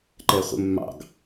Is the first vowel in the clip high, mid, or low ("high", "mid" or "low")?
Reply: mid